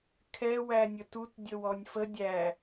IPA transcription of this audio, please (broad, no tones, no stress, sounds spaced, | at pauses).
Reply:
kʰ ɛ w æ nʲ ə t u t dʲ ə w ɔ nʲ f ə dʲ æ